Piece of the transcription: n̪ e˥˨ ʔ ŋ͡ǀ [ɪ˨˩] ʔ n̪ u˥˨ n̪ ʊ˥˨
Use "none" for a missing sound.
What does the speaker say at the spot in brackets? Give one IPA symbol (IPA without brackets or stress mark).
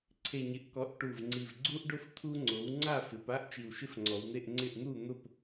ɪ˥˨